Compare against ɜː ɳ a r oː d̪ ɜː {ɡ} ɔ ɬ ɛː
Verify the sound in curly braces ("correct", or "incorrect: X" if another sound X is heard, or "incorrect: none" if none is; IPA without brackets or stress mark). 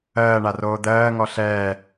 incorrect: ŋ